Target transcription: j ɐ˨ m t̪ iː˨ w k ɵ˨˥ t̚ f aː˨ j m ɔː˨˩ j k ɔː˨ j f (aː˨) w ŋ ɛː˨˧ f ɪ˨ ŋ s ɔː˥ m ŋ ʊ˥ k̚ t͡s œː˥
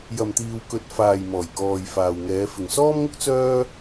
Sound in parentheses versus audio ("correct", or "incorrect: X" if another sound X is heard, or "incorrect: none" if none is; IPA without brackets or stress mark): correct